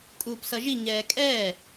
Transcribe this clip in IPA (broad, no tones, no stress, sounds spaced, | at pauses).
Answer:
kʼ uː p s ʌ ʒ i ɲ ɛː kʼ ɛː